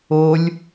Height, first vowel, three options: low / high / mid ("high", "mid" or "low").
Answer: mid